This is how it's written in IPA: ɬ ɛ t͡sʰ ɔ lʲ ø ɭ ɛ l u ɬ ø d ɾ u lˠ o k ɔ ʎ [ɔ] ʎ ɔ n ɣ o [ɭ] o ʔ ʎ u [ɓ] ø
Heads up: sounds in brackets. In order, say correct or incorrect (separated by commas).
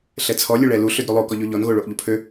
correct, correct, incorrect